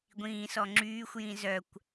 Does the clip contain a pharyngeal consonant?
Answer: no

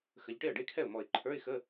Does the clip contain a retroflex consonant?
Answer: yes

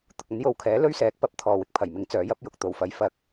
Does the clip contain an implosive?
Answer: no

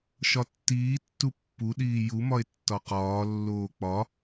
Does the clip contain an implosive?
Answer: yes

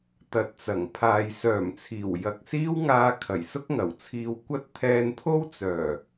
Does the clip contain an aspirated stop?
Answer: yes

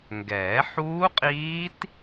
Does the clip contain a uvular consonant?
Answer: yes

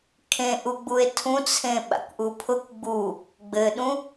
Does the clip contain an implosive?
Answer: yes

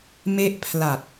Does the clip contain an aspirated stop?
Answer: yes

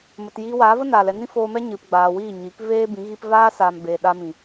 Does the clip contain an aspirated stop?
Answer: no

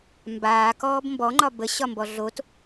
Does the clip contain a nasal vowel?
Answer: no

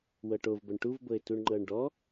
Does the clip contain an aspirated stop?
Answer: no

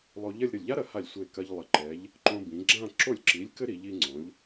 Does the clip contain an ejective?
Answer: no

